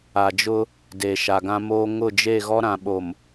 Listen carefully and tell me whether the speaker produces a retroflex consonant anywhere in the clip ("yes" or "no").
no